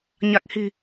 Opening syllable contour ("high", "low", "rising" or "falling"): low